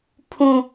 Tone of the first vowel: high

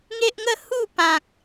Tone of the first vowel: high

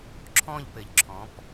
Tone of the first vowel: falling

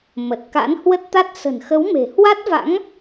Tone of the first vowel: low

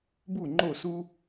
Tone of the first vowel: falling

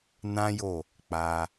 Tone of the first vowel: high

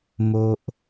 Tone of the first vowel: high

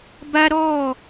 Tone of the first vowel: high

